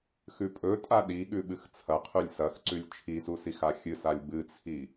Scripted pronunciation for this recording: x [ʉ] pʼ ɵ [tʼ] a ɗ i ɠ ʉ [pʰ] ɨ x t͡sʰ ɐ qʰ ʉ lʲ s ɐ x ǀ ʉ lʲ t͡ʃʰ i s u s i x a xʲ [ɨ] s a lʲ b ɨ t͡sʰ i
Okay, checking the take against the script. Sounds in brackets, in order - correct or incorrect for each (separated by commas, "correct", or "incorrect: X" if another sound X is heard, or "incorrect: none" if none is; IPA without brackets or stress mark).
correct, correct, incorrect: ɓ, correct